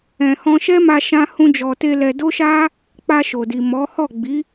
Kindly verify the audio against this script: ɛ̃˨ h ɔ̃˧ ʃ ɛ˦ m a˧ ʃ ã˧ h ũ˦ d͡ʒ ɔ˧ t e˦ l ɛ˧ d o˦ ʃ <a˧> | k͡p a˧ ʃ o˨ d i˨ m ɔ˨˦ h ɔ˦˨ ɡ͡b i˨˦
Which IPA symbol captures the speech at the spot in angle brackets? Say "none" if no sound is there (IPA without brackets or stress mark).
a˦